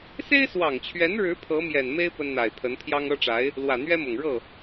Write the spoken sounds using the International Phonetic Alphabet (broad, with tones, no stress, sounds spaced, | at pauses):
s e˥ ɪ̯ s w ɑ˨˩ ŋ t͡ɕʰ ɥ ɛ˧˥ n ɻ ɻ̩˧˥ pʰ ɤ˧˥ m j ɛ˨˩ n m e˥ ɪ̯ p ə˥ n n̪ a˨˩ ɪ̯ pʰ ə˧˥ n pʰ j ɑ˥ ŋ ɤ˥ ʈ͡ʂ a˧˥ ɪ̯ | l w ä˨˩ n̪ ɥ ɛ˥ m ʊ˨˩ ŋ ɻ ɤ˥˩